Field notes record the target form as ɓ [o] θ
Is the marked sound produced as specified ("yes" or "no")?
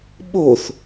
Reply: yes